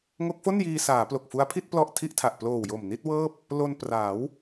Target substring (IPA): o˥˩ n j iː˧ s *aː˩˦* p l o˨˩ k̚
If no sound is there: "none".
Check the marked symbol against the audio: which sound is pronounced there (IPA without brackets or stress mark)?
aː˩˦